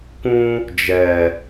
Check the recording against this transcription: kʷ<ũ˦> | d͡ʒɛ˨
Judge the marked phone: correct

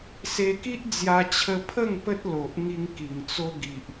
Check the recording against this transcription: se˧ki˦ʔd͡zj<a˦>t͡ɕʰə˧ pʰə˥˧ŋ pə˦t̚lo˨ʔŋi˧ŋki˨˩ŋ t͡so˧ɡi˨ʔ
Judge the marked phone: incorrect: a˧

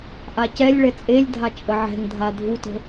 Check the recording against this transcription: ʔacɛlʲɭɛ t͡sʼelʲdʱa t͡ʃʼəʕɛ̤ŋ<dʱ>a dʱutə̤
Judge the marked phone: correct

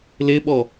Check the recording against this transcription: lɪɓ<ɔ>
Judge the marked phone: correct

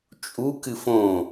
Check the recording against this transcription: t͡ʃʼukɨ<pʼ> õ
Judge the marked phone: incorrect: f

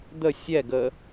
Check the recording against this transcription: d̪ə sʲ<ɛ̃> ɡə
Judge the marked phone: incorrect: ɛ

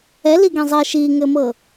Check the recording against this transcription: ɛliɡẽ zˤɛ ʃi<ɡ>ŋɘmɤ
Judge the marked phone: incorrect: none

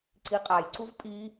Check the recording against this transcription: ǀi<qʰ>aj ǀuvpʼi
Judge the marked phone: incorrect: qʼ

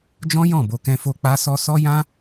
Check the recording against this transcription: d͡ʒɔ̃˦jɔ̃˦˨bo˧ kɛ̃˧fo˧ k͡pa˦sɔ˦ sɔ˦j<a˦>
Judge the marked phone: incorrect: ã˦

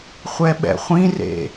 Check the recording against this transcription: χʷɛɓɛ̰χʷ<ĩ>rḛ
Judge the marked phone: correct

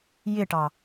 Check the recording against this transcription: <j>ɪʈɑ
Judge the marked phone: correct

